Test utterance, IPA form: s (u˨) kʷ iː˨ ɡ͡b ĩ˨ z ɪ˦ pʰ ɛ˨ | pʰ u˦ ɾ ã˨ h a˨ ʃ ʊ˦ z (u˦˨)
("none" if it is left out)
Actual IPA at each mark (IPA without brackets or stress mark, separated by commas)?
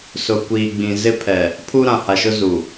ʊ˨, u˨